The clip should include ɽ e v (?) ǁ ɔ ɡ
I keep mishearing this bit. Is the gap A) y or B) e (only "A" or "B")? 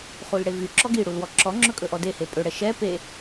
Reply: A